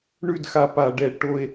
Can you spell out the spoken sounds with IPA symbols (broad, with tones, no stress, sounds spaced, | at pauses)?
ɳ ʉ˥˨ d x a˧ p a˧˩˧ ɖ ɛ˧˩˧ ʈ o˧ e̯